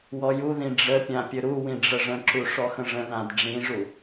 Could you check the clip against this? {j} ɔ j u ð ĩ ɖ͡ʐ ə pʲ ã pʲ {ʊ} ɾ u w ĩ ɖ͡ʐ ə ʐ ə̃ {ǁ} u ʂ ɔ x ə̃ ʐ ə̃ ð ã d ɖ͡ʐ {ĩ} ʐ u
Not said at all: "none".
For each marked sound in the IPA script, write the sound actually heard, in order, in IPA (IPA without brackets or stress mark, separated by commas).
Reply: w, ɵ, ǁ, ĩ